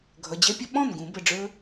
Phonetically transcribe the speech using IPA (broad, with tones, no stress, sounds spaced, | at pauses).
ɡʱ ʌ˩˧˩ d͡ʑ ɛ˦ pʲ ə˦ ɓ ɔ̃˥˩ n ɡ ũ˨˩˦ b ə˩˧˩ ɖ͡ʐ ə˞˦